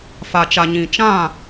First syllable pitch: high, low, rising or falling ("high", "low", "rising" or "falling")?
low